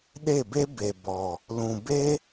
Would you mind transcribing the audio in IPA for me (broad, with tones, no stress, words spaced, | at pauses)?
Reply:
ɗe˦˨be˦ be˨ bɔ˨ | lũ˨be˦